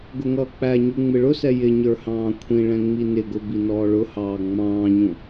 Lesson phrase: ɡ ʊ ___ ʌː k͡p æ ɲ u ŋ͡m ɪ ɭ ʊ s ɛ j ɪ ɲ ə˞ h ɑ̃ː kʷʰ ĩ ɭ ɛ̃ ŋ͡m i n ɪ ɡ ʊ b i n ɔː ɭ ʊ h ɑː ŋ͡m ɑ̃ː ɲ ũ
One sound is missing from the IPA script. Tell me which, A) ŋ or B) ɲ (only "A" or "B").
A